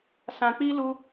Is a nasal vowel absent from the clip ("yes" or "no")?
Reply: no